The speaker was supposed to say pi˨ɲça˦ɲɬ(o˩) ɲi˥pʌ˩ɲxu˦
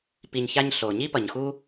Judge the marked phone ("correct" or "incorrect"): correct